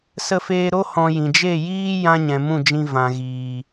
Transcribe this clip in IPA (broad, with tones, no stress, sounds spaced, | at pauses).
s ə˧ f eː˧ ɾ o˦ h ɔ̃˧ j ĩ˨ d͡ʒ e˦˨ j iː˦ j ã˧ ɲ ɛ̃˨ m ũ˦˨ d͡ʒ ĩ˧ v ã˨ ɣ iː˨